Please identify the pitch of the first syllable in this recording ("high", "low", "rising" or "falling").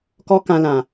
high